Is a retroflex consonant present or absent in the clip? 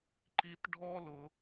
present